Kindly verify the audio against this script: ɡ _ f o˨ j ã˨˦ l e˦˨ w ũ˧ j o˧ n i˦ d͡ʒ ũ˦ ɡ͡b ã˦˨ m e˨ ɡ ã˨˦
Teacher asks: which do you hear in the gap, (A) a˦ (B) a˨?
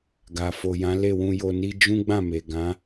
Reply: B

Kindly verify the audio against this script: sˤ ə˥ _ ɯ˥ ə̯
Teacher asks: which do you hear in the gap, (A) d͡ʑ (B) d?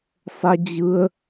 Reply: A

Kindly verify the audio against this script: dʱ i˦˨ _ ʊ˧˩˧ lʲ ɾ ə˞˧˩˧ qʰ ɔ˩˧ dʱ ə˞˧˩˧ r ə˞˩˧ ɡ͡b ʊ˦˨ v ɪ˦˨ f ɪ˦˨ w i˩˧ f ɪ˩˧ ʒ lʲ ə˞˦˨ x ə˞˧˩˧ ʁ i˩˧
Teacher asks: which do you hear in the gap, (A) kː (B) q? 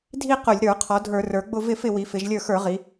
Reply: B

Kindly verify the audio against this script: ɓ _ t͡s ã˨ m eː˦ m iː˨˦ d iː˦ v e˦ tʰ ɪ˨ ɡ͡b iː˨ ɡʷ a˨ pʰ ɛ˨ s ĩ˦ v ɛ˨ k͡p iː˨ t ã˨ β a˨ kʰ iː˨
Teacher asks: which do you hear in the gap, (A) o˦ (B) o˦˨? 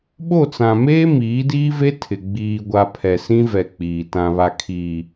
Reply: B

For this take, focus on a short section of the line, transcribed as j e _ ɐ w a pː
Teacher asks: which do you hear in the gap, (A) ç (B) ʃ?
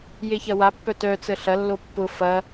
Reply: A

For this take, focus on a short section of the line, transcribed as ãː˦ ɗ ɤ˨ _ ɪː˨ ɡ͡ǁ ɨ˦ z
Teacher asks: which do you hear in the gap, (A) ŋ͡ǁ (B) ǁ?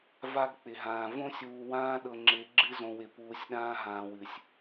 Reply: A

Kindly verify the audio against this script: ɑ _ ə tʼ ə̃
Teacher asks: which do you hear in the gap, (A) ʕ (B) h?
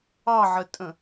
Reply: A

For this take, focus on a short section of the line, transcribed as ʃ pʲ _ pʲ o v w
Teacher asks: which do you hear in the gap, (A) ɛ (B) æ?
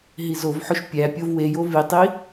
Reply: B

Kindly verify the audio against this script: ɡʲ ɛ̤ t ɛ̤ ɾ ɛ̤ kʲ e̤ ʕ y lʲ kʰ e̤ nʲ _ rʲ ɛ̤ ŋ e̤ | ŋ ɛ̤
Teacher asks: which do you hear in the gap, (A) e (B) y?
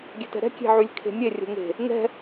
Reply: A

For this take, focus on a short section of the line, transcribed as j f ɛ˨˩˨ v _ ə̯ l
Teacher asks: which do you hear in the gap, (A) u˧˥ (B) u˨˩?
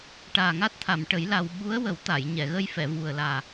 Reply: B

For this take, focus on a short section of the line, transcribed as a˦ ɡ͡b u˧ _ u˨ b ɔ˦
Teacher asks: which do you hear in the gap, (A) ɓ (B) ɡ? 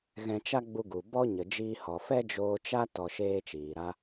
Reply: B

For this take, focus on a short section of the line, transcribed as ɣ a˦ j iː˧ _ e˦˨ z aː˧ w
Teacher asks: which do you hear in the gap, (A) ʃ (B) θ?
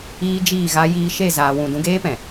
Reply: A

